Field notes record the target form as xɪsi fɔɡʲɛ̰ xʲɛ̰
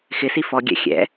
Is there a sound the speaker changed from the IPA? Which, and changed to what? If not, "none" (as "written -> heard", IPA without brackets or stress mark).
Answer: none